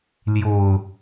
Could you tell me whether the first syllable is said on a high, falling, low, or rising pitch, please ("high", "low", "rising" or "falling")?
low